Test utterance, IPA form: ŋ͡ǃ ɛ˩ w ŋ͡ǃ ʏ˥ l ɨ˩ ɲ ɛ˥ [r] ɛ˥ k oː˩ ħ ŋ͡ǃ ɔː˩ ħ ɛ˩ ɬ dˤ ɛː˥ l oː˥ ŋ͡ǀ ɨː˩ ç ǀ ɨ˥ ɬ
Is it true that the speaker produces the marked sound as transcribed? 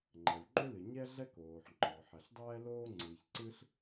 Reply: no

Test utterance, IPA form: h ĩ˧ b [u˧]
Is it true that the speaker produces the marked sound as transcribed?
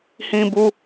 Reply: yes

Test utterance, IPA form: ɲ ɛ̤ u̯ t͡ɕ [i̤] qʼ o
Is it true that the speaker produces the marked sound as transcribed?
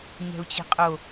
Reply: yes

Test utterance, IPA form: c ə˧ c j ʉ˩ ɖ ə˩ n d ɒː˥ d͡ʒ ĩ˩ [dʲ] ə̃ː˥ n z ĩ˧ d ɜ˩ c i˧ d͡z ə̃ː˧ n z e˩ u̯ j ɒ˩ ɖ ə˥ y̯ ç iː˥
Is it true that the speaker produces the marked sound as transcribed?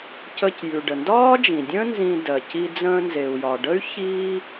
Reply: yes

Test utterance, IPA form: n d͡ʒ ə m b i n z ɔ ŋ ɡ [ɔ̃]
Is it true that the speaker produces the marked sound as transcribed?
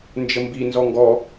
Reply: no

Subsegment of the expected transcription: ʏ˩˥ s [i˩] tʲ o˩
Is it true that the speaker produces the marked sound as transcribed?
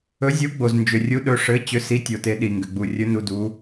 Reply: no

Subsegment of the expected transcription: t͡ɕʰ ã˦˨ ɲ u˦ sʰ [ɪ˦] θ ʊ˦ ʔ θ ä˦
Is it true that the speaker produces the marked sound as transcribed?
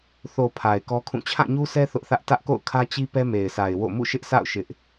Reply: no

